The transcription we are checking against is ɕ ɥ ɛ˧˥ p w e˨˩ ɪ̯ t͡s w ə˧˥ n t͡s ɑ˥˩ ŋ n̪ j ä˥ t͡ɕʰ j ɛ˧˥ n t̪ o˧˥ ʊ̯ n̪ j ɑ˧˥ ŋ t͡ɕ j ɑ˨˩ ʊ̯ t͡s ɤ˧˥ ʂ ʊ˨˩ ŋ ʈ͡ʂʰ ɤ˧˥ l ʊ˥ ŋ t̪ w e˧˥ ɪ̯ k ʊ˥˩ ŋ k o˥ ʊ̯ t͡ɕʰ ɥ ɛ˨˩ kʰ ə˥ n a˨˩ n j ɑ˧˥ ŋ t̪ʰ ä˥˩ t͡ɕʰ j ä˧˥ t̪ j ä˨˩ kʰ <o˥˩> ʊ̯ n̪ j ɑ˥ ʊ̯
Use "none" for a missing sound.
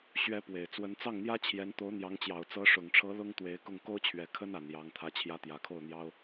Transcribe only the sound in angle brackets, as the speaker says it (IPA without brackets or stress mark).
o˥˩